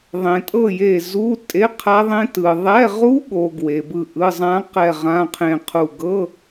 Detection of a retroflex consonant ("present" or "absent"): absent